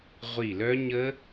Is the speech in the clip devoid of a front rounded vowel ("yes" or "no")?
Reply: no